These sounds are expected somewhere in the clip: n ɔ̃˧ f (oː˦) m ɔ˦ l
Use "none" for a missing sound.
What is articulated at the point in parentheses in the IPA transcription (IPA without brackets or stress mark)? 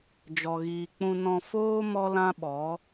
oː˦